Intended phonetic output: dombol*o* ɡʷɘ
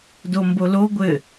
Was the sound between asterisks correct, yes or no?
yes